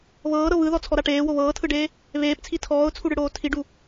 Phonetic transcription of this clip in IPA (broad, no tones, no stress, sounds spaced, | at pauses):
β ɤː ɾ ɤ β ɯ ð ɔ t͡sʰ ɔ ɾ a ʈ eː w o β ɤː tʰ ɯ ɖ eː | β eː p t͡sʰ i tʰ ɔː ʊ̯ t͡sʰ u ɽ ɯ ɽ oː tʰ i ɖ u